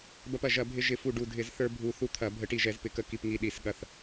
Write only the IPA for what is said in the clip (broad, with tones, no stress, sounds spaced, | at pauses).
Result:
b ɐ˧ p ɐ˧˩ ʒ ɐ˧˩˧ bʱ ɪ˧ ʒ ɪ˧˩˧ f u˧˩ ɖ u˧˩ dʱ ɪ˧˩˧ z θ ə˞˧ bʱ u˧˩ θ u˧ t̪ʰ ɐ˧˩˧ bʱ ə˧˩˧ ʈ i˧˩ ʒ ɛ˧˩˧ z p ɪ˧˩˧ k ə˧˩ k i˧˩ p ŋ i˧˩ ɗ i˧˩˧ s ɠ ɐ˧˩ θ